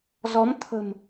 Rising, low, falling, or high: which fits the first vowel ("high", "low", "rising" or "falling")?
rising